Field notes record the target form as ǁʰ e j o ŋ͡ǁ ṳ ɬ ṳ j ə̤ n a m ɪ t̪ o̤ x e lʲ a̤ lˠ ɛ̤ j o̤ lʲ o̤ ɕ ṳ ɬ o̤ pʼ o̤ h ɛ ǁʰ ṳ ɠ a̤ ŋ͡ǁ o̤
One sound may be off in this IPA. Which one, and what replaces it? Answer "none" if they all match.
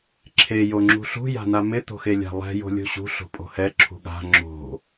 ə̤ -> a̤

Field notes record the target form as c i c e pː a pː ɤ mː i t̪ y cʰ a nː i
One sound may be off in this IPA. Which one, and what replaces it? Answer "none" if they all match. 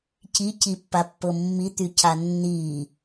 e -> i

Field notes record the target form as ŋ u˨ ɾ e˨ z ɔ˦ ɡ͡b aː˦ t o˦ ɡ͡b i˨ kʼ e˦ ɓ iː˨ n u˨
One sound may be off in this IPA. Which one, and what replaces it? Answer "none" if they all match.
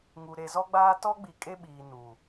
o˦ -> ɔ˦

